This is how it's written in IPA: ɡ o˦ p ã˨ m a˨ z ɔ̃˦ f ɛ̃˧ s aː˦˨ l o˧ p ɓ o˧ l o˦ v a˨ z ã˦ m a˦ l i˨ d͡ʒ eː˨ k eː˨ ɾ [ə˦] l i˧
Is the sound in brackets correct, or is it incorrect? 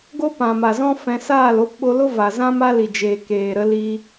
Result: incorrect